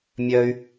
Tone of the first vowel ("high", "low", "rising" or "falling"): high